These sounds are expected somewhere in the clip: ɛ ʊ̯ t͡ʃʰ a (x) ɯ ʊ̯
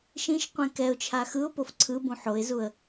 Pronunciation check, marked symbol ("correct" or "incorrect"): correct